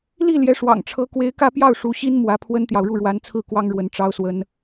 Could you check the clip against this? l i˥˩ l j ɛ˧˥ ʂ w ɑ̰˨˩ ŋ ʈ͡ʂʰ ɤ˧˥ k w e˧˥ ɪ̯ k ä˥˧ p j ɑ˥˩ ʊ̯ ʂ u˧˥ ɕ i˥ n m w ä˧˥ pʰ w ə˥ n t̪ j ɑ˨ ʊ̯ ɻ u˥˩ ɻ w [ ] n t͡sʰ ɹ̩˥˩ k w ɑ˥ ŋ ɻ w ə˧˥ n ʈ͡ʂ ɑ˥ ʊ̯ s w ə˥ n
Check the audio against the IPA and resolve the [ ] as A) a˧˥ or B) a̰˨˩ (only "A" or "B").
A